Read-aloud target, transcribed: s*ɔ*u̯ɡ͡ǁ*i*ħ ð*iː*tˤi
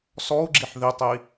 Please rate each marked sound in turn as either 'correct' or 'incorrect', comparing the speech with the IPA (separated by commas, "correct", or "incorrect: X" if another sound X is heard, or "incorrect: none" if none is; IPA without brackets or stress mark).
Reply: correct, correct, incorrect: i